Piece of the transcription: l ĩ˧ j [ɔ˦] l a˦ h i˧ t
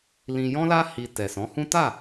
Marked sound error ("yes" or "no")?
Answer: yes